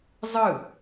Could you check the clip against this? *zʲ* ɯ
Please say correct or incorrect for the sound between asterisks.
incorrect: zˤ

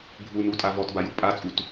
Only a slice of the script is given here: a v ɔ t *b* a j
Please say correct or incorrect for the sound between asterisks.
correct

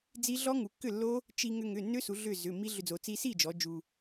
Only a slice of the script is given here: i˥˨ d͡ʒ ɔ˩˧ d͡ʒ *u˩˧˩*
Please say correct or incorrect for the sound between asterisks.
incorrect: u˧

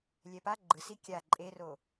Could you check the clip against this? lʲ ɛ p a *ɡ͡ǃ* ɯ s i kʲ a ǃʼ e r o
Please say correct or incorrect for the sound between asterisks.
correct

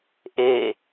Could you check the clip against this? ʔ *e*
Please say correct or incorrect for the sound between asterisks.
correct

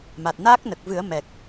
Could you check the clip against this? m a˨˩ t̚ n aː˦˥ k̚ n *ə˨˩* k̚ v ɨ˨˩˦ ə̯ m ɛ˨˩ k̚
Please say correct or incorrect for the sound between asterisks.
correct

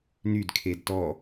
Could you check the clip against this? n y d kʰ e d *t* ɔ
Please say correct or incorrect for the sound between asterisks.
correct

